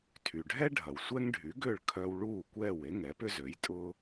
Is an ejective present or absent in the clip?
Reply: present